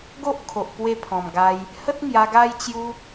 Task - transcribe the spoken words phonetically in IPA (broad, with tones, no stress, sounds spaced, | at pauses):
ɡ o˦ ʔ kʰ o˨ ʔ p w e˧ pʰ ɔ̃˨˩ m ɡ a˧ j | h ə˦ t̚ ŋ j a˧ ɡ a˦ j t͡ɕ j u˦